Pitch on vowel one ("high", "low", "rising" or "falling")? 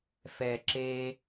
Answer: low